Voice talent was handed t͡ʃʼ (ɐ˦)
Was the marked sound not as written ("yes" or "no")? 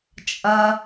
no